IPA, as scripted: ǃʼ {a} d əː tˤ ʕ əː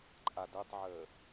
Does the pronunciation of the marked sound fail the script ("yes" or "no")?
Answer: no